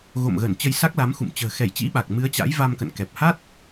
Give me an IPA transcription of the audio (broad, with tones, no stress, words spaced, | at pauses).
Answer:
ɣo̰˧˨mɣə˧˩n t͡ɕə˧jsa˦˥k̚la˨˦m xṵ˧˨m t͡ɕə̤ː˨˩xɛ˧˩jt͡ɕḭ˧˥ɓa˨˩k̚ mɨ˨˦ə̯t͡ɕa̰˧˥jva˧m kə̰˧˨nkɛ˨˩p̚ ha˦˥t̚